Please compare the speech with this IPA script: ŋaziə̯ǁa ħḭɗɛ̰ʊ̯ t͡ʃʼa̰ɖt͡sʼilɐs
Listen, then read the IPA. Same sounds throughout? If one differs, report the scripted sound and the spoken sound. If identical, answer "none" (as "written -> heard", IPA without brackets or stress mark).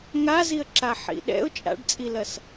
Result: none